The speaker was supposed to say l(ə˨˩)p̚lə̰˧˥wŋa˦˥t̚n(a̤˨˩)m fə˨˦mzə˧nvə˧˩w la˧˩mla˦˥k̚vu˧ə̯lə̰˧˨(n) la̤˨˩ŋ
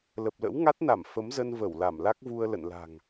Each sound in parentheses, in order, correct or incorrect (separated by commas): correct, incorrect, correct